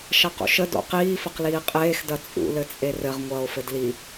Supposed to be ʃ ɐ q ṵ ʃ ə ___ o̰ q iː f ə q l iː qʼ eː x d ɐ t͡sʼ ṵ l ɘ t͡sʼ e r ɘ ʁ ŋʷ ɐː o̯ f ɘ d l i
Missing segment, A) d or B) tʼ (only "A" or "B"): A